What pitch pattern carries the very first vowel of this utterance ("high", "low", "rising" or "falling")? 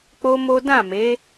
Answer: high